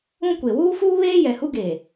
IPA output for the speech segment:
ũ˦ kʷ e˨ w uː˦ f uː˦ β eː˦ j ɛ˨ h u˦ ɡ eː˨

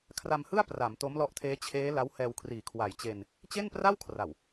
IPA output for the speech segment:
kʰ r a˧ m h ɯ˥˩ a̯ p r a˩˦ m t o˦˥ m l ɔ˦˥ ʔ tʰ eː˦˥ t͡ɕʰ eː˦˥ l a˦˥ w h ɛː˧ w kʰ r iː˨˩ kʰ w a˨˩ j t͡ɕ e˧ n | t͡ɕ e˥˩ n p r a˥˩ w kʰ r a˨˩ w

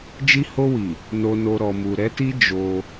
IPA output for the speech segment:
d͡ʒ i˧ h o˧ w i˨ | n o˨ n o˨ ɾ ɔ˨ m u˨ ɾ ɛ˨˦ t i˦ d͡ʒ o˧

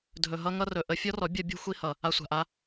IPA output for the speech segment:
dʱ ɵ˨ ɦ ʌ˧ ŋ ʌ˧ r ɵ˨ ʔ ə˧ fʲ ɔ˦ r ɔ˨˦ bʲ ʌ˦ bʲ o̤˦ xʷ i˧ h ʌ˨ | a˧ sʷ a̤˨ ʔ a˧

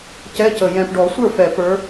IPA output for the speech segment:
c ɛ˧˥˧ c ə˨˩ j ɛ̃˨˩ p ɖ ɔ˨˩˦ sʷ ə˞˥˩ f ɛ˨˩˦ p ə˞˨˦

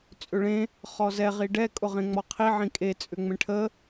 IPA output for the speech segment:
t͡sʼ ʏ ɭ ẽ | χ ɔ z ɛ ʁ i ɖ ɛ kʼ ʊ ʁ ẽ ŋ͡m ɔ qʰ i ʕ ĩ kʼ e t͡sʼ ʏ ŋ͡m ẽ ʈʰ ə

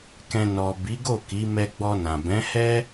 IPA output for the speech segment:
k ɛ̃˨ n ɔ˨ b i˨˦ ɡ o˦˨ k i˨˦ m ɛ˧ ɡ͡b ɔ˧ n ã˨ b ɛ̃˨˦ h ɛ˦

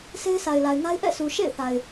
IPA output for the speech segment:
sʰ e˦ ɪ̯ sʰ a˨ ɪ̯ l a˨ ɪ̯ ŋ a˦ ɪ̯ ʔ ɛ̰˦˨ sʰ u˨ ʃ ḛ˦˨ ɪ̯ θ a˨ ɪ̯

